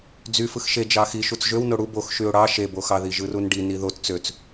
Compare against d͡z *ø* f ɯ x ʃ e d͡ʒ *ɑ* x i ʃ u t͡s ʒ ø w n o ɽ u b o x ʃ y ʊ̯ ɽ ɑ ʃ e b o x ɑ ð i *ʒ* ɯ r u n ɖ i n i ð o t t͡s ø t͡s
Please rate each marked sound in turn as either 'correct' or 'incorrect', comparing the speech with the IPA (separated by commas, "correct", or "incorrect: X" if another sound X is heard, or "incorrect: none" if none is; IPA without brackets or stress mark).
incorrect: y, correct, correct